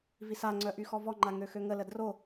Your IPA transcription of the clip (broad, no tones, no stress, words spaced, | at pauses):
visaŋ͡ǀœ ʔyxɔvɔŋ͡ǃa ŋøxøŋələ dro